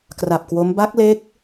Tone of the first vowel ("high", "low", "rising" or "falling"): low